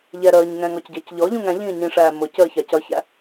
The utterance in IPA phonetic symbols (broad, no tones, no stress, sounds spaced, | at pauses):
ʎ ɛ ɾ əː ɲ ŋ ɛ̃ ŋ ɔ c ɟ əː c ʎ ɔ ʎ ũ ŋ æ̃ ʎ ĩː ɲ ĩ ʂ æː m ʊ c əː ç ɑ c ʌ ç æ̰